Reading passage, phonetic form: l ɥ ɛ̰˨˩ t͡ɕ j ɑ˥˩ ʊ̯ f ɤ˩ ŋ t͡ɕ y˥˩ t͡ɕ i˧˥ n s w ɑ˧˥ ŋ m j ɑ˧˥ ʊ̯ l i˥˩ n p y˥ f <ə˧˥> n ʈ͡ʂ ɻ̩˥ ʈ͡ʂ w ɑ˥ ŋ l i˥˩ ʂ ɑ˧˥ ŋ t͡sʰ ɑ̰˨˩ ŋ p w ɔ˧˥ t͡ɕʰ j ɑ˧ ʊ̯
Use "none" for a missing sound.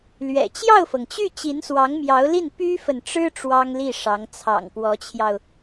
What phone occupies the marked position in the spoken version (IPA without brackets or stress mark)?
ə˨